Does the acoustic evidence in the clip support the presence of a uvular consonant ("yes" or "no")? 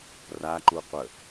yes